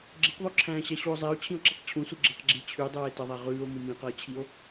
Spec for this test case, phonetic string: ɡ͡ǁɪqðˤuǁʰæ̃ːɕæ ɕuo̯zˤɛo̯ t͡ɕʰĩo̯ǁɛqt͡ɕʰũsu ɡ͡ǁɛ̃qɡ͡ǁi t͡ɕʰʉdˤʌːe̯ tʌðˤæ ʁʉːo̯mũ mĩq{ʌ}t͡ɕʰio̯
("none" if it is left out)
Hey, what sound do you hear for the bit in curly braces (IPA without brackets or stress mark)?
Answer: ʌː